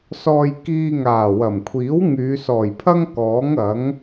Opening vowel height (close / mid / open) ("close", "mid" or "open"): mid